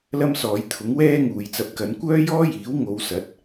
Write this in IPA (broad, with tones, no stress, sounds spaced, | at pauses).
l ɐ˥ m s ɔː˨˧ j t̪ʰ ʊ˨˥ ŋ w ɛː˥ ŋ uː˨ j t͡s ɐ˨ p̚ k ɐ˨˧ n kʷ œː˥ j ɔː˥ j iː˨˥ w ŋ o˧ w s ɐ˨˥ t̚